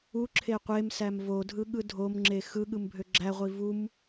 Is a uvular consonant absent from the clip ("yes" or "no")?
no